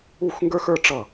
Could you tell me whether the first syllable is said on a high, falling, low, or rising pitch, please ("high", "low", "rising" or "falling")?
falling